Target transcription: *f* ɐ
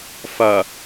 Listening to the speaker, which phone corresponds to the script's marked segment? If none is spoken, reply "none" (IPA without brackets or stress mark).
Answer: f